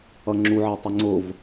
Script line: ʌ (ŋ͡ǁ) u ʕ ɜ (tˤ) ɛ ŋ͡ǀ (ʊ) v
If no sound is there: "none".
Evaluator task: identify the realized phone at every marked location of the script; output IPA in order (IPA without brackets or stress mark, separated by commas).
ŋ͡ǁ, tˤ, ʊ